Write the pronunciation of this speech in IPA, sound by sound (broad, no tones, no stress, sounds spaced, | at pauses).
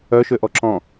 œ ʃ ø ʔ ɔ ǁ ɔ̃